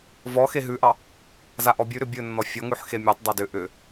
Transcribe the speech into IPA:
vɔ xeɦʉʔɑ | zaʔɔbʲʉɾʏ bʲɵnːɔ fʲɔŋʉħ xemʲɔtˤdˤa dʏ ʔʏ

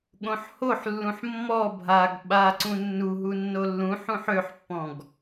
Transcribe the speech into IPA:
ɠõħhoħlːũħ mːɔ bʱaɡ ɓaǀũ nːuɦu nːolːũħũħ øħpːɔ̃ɡ

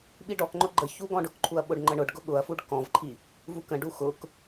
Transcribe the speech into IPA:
ɓiɖɔkŋ͡ǃʊ ɡ͡ǃəçu ɡɔ̃ɖʊkǃʰuɐ̯ ɓʊɖŋ͡ǃəɳʊɖɡʊ ɠʊɐ̯fuɖ kɔ̃vǃʰi | vukə̃ɖu xʊk

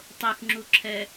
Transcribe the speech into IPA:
tˤoxŋ͡ǁuǁʰɛ

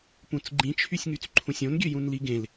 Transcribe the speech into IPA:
pũt͡sɡ͡ǃĩt͡ʃʰysʲŋyt͡s ǃʰũsʲõnɡʲø jũnliɡẽl

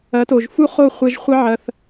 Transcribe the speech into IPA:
ɐ˨˦to˨ʒfu˦χo˦˨ χʷe˧ʒχʷɐ˦ʕɐ˧θ

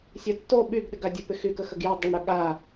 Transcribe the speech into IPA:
sʲɐtːo ɓyɡɗɪɡ adʲɐpɪxy kəxəɡjɐ dˤɪɳɽœ ɠa

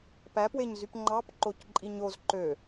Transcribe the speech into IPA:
pæpweɲzyp ŋ͡ǃɑp ǃocǃʼiɲoz ǃø

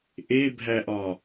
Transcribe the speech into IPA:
ʔebʱæʔɒ

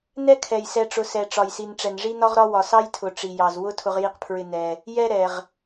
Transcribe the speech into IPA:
nɛ˥kʰɛ˧j sɛ˧ʈ͡ʂʊ˧ sɛ˧ʈ͡ʂɒ˧jsi˧n ʈ͡ʂɛ˧nʐi˥nɒ˥ʁɾɒ˥ wɒ˧sɑ˥jtʰʊ˧ ʈ͡ʂi˧jɑ˧zwʊ˥ tʰʊ˧ʁji˧qpʰɹɪ˧ nɛ˧ | jɛ˥ɾɛ˧ʁ

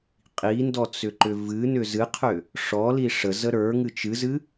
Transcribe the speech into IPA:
qʼindɔt͡sʏǃʏ vɨnʏ zɨqʰʏ | ʂɔli ʂəzə ɾə˞ŋɨ t͡ʃɨzɨ

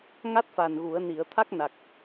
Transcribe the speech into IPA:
ŋa˦˥t̚fa˨˩n ɣu˨˩˦ə̯ni˨˩˦ə̯ t̪ʰa˦˥k̚na˨˩k̚

